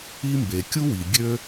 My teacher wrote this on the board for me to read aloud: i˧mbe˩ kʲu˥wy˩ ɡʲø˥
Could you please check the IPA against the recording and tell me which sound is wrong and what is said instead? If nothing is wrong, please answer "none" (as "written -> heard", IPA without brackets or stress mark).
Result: y˩ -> i˩